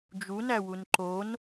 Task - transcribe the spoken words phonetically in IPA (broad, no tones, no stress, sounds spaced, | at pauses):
d͡ʒ u n æ w u n ǃ o n